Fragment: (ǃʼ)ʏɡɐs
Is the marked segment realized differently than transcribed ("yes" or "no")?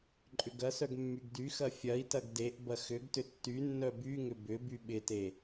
no